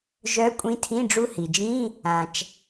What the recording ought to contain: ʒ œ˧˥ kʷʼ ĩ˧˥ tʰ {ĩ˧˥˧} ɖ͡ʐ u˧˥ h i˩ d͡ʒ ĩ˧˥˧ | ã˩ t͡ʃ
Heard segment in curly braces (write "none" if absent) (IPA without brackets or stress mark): ĩ˧˥˧